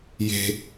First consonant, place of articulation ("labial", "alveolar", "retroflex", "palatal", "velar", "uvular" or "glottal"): palatal